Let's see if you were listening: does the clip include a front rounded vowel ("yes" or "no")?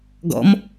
no